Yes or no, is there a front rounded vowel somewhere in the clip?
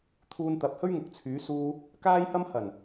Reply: yes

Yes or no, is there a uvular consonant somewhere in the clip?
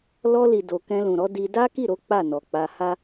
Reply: no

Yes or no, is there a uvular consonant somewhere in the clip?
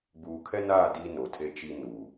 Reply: no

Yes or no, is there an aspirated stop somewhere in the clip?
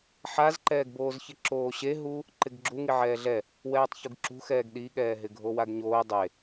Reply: no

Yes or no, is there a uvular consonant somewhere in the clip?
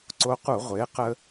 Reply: yes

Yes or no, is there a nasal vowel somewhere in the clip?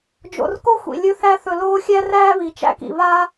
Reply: no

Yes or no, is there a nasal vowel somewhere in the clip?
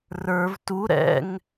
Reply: no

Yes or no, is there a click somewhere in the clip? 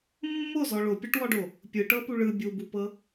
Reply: no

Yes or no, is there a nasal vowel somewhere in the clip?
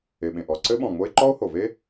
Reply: yes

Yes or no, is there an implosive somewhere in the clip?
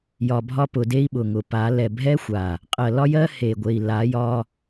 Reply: yes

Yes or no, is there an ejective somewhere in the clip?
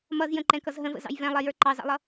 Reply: no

